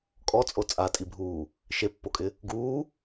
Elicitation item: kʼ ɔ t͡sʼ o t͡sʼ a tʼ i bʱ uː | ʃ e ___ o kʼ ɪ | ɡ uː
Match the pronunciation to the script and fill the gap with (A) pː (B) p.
A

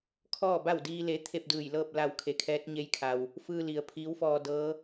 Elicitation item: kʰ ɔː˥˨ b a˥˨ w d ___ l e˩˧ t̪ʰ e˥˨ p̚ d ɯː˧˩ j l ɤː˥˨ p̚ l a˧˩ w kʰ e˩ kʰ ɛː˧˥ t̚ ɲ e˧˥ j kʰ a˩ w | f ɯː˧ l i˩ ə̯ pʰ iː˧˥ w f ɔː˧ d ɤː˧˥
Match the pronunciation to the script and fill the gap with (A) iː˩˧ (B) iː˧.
B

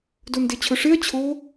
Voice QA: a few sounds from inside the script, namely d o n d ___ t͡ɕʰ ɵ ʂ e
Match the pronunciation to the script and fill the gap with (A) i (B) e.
B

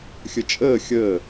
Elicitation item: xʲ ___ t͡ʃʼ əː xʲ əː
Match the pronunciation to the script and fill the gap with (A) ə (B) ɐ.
A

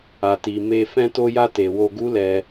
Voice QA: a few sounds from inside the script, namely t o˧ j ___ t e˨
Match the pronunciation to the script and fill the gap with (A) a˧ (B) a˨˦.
A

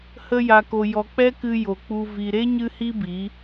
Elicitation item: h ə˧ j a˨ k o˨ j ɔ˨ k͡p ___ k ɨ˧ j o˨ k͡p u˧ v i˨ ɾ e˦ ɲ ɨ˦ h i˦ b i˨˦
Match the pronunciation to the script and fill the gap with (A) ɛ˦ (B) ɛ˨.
A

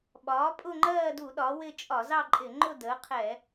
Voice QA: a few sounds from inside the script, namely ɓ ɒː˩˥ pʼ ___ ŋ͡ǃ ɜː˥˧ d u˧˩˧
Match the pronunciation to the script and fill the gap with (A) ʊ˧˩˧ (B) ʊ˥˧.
B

